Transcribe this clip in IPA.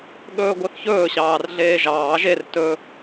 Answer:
ɠɵːɡʷœθçɵː ɕɑːrɮeːʒɑː ʒer tɵ

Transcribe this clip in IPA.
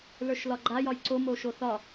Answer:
lə˞ʃlɒɡ͡ǃa jɒjǀo moʃoθɒ

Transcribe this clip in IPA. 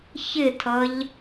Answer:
çɪtʰʌʎ

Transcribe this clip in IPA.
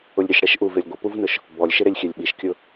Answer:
ʊlʲɾʲʊʃ ɽɛʃʔuvelʲ ɡʷɪpuvnʊʃ | bɔlʲʃɪɾelʲ xʲɛlʲɓiʃkʲʊ

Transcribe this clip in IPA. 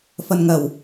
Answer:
fɐ˧nŋɐ˨w

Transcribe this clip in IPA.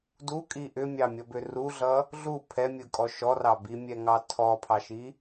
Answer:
dukʼi ʔʏmʲɑmʲʌbʏ ruɮʌ | ɮu pʰɛmʲɯkʼɔ ʃɔrɑ bimʲɛŋɑ tʰɔpʰɑʃi

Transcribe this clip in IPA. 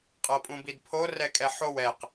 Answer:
qʼɤpʼũbidpʰo rɛkʼɛħow ɛq

